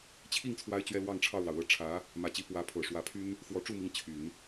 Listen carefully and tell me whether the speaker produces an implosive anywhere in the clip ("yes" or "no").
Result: no